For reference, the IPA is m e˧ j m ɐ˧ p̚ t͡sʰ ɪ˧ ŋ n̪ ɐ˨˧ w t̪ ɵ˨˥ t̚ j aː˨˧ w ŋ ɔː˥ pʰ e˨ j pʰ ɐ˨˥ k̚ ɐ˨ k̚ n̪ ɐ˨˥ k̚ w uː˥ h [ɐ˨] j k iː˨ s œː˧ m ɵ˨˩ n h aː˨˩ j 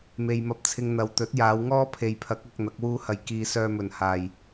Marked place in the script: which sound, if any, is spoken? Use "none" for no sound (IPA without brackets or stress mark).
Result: ɐ˧